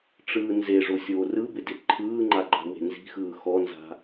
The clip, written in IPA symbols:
ʈ͡ʂɯːnzeʐo sʲoːrɯbɪ dɪǃʰɯːŋ͡ǃa ɡ͡ǃa̤we̤nzi̤xɯː xɔnza̤

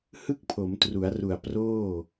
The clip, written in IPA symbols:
hɯ˥˩k̚pʰo˩˦mtru˩˦a̯ru˨˩a̯ proː˥˩

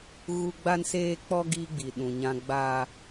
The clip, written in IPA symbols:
ɣu˦ ɡ͡ba˦nseː˦k͡pɔ˦ ɡiː˦ɡ͡bi˨ ɗũ˨ɲã˦ ɡ͡baː˦

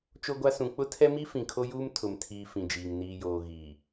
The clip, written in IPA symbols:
t͡ʃo˦ɡʷa˦ sũ˨k͡pʊ˦tʰɛ˦mi˦ fĩ˨kʰo˦juː˦m tʰʊ˨mtʰiː˨ fĩ˨d͡ʒiː˨ŋ niː˨joː˨ ɣiː˨

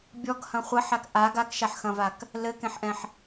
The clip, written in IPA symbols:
bʲɔɡhɐ̃ χʷɐħak ʔa ɡakʃaħxɐ̃vak | lɘkẽħʔɛ̃ħ

